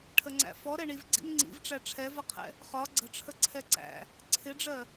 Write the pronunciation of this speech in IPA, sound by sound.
ʈʰ ə ŋ͡ǀ æ̰ f ɔ ɾ ɛ ɳ i v ɡ͡ǀ ḭ n ŋ͡ǀ ḭ v ʈ͡ʂ æ ʈ͡ʂʰ ɛ v ʌ qʰ ɛ̰ | χ ɒ ɡ͡ǀ ə̤ ʈ͡ʂʰ ə ǀʰ ɛ ǀ æ̰ | ǀʰ ɪ ɖ͡ʐ ɜ

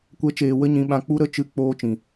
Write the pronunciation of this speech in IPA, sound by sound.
kʷ ɛ˦ t͡ʃ eː˨ w ə˦ ɲ ĩ˧ ɓ ã˧ k͡p u˦ ɾ ə˦ t͡ʃ ɨ˨˦ k͡p oː˧ t͡ʃ ĩ˨

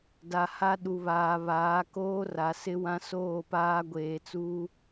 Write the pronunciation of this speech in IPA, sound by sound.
d a˨ h a˦ ɗ u˨ β aː˨ β aː˨˦ k oː˦ r a˨ s ɪ˦ w ã˦ s oː˦˨ p aː˦ ɡʷ eː˨ t͡s uː˦

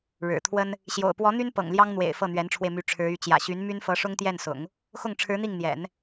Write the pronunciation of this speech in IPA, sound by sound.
ɻ ɻ̩˨˩ t̪ʰ w ə˥ n | ɕ j o̰˨˩ ʊ̯ p w ɔ˧˥ n̪ y˥ n p ɤ̰˨˩ ŋ l j ɑ˥ ŋ n̪ w ḛ˨˩ ɪ̯ f ɤ˥˩ n̪ ɥ ɛ˧˥ n ʈ͡ʂʰ w e˧ ɪ̯ m y˧˥ ʈ͡ʂʰ ɻ̩˧˥ y˧˥ t͡ɕ j ä̰˨˩ ɕ y˧˥ n m y˥ n f ɤ˧˥ ʂ ʊ˥ ŋ t̪ j ɛ˥˩ n s ʊ̰˨˩˦ ŋ | x ʊ˥˩ ŋ ʈ͡ʂʰ ɻ̩˧˥ n̪ i˥˩ ŋ n̪ j ɛ̰˨˩˦ n

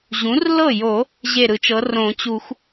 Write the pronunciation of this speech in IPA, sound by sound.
ʑ ũ˩˥ r l ɤ˥˩ j o˨˩˦ | ʑ e˥˩ ɾ ɯ˨˩˦ t͡ʃ ɤ˩˥ r õ˨˩˦ t͡ɕ u˨˩˦ x

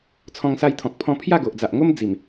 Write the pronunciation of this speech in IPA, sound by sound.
t͡sʰ ɔ̃˧ ŋ s a˧ j t̪ʰ ɔ̃˨ k̚ pʰ ɔ̃˥˧ pʰ j a˥˧ ɡ o˨ ʔ d͡z a˨ ʔ ŋ o˦ m d͡z i˨˩ m

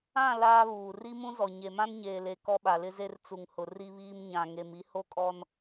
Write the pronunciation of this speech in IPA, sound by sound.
ã˦˨ l aː˦ β uː˨ r i˦ m ũ˦ z ɔ˨ ɲ e˨ m ã˦ n ɲ eː˨ l e˨ k ɔ˦ ɓ a˨ l ɪ˦ z e˦ r t͡s u˨ ŋ h ʊ˨ r i˦ β iː˦ m ɲ ã˦ ŋ e˦ m i˦ h o˦ kʼ ɔ˦ n

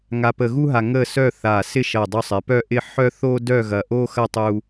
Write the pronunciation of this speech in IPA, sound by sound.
ŋ a˧ p ə˧ ɣ u˥ ɦ a˧ ŋ ə˥˧ s œ˥˧ θ a˧˩ s ɪ˥˧ ʃ ɐ˧˩ dˤ u˧ sˤ ɪ˩˧ p œ˥˧ ʔ ɪ˥˧ ħ œ˥ θ o˥ d œ˥˧ ɣ ɐ˧˩ ʔ o˥ x ɐ˥˧ tˤ u˧

